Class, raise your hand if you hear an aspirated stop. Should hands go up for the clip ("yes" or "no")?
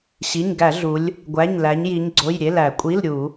no